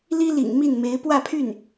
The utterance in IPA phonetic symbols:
li˥lḭ˨˩ŋ mi˥˩nme˧˥ɪ̯ pwä˥˧pʰy˥˩n

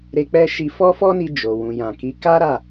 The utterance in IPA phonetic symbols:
ɾe˧k͡pɛ˦ʃi˧ fɔ˦fɔ˦ni˧ d͡ʒo˨ wũ˨jã˨ki˨˦ ka˦ɾa˦˨

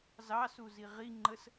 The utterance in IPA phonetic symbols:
zɑsuzi ʁiŋ͡ǃəs

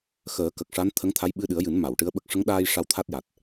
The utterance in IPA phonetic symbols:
xəː˨˩˦kə˨˩k̚ʂa˧˥n t̪ʰə˧˥ŋt̪ʰa˧˥j ɓɨ˧ɗɨ˨˩˦ə̯jɨ˨˩˦n ma˨˩˨w ʈɨ˧˥ə̯ɓə˦˥k̚ ʂə˧˥ŋɗaː˧j ʂa˧wt̪ʰa˦˥t̚ja˨˩t̚

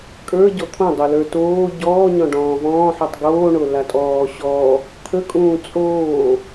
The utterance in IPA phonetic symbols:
kʼə˞ ɟɔt̪ʰõ dˤolə˞ toː ɟɔː ɲɔ̃ɖɔ̃ːvɔ̃ːħutˤ ɡoːɳo latʼɔː ɕɔ | t̪ʰəkʼũː t͡sʼoː

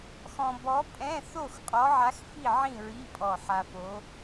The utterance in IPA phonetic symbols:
xɔ̃˧bɔ˧˥pʼɛ̃˧˥˧ θo˥˨x qʼɔ˧˥ʕa˧˥x fi˥˨ʕĩ˥˨ɹi˧˥˧ pʼɔ˧˩ħa˧fo˧˥

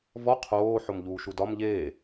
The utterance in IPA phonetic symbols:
vɔ qʰoː ħomʎuːʃudɒm ʎeː

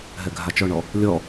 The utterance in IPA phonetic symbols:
ɦɛɡʱat͡ʃɔɳɔ | lʲɔ

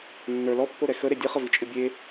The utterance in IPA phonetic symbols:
nːə˞ lɔpːoɾɛ xəɾe dʲɨχəvit͡ʃʼɨ bʲe

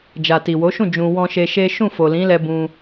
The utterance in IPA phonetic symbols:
d͡ʒa˨ti˨wo˨˦ʃũ˦˨ d͡ʒũ˨ wɔ̃˧ʃe˧ ʃe˦ ʃũ˦˨fo˨lĩ˨˦lɛ˧ bũ˧

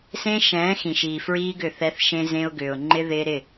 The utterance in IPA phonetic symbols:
sẽ˦ʃɛ̃ː˨˦ xĩ˨ʃiː˨fɹiː˦ɡʏ˦˨ θɛ˦θʃẽ˦zẽ˦ʊ̯ ɡʏː˨ʊ̯ŋ͡ǃɪ˦ ðɪː˦ɾɪ˦˨

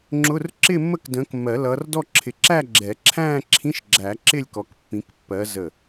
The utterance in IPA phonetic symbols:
ŋ͡ǁʊ˧˥˧r ǁɪ˥˧mːə˥˧k də̃ː˨˦kmːɜ˨˩˦lʌː˨˦rdɔ˥˧ ǁʰɪ˧˩ǁæ˥˧ɡ͡ǁɛ˨˩˦ ǁʰæ̃ː˥˧ǁʰĩ˧˥˧ʃɡ͡ǁæ˨˩˦ ǁɪ˥˧lʲkɔ˨˦kpːĩ˨˦k pːɜ˨˦zə˧˩

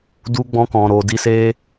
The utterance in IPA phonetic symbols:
du˧ɡ͡bɔ̃˧kɔ̃˨ ɾo˨di˧se˦

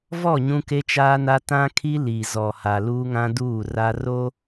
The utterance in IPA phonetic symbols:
vɔ˦˨ ɲũ˦ke˦t͡ʃaː˦na˦ tã˦kʰi˦ li˨ zɔ˨ha˨ luː˦ŋã˦duː˦˨ra˦ ro˦

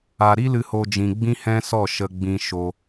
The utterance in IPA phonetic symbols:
a˨ɾi˦ lɨ˧ho˧ d͡ʒĩ˨ɡ͡bĩ˦hɛ̃˦ sɔ˦˨ ʃə˧ɡ͡bĩ˧ ʃo˧

